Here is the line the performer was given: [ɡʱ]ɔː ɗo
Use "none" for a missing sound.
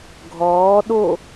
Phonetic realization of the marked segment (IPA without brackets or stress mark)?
ɡʱ